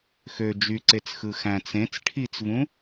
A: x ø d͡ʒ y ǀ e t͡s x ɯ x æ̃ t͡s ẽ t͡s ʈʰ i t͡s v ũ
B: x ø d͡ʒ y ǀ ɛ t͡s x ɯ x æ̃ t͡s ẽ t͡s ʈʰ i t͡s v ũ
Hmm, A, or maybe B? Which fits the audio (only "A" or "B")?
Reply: A